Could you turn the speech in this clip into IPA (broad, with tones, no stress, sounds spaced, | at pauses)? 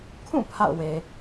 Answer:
kʰ ũ˦˨ pʰ a̰˦˨ ʊ̯ w e˨